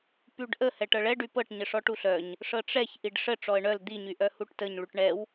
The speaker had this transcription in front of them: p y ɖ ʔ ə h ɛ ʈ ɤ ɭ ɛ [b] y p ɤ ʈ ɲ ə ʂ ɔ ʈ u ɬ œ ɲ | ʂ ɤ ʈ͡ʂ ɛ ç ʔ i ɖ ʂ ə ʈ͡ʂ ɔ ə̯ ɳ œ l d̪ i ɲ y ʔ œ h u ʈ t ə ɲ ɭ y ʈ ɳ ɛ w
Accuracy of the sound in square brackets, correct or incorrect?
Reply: incorrect